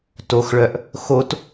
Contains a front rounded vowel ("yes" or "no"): yes